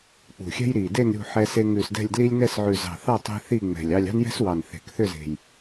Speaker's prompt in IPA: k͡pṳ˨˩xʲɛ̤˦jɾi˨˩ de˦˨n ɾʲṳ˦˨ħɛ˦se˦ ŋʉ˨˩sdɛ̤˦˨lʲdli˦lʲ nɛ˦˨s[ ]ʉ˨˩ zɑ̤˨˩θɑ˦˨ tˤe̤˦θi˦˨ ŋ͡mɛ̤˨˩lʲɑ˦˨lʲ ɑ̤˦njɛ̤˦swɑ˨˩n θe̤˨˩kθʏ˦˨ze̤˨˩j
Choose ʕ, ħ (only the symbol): ʕ